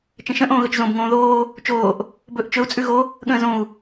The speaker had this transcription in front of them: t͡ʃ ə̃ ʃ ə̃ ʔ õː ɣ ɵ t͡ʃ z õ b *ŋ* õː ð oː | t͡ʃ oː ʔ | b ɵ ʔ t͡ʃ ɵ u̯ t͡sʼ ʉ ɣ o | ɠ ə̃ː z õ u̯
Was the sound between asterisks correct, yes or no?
yes